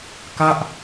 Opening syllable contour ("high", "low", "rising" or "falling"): falling